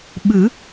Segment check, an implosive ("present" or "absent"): present